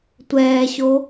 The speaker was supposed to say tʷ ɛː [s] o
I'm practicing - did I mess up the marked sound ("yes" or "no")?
yes